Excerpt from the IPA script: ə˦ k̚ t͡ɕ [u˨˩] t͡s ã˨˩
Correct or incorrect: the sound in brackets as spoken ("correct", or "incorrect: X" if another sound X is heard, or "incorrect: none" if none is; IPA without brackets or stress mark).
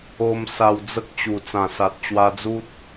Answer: correct